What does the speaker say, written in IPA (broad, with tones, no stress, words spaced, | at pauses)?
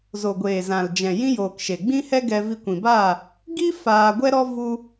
zo˨ɡʷeː˨zã˨ld͡ʒɛ̃˨ jĩ˦joː˨k ʃe˨ɡ͡bĩ˦hɛ˦ɡɛ˧ vi˧kʷĩ˨baː˦˨ | ɡi˦ faː˧ɡʷɛ˦ɾɔ˦ vu˧